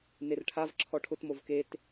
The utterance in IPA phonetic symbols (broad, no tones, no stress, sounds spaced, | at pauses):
n e r ʈʰ a v ǁʰ ɔ ʈʰ ʊ t m o v k e t